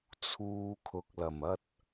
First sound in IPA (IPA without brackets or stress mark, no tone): t͡sʰ